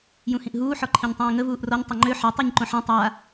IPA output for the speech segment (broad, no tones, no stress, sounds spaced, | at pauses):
j ũ h ĩ ʔ ɦ uː ħ ɔ ǃʰ ĩ ɲ tˤ ĩː ŋ ə v uː ʔ r ɔ ɲ tˤ ɛ ŋ͡ǃ ø ħ ɛ tˤ u ɲ ǃ õ ħ ã tˤ a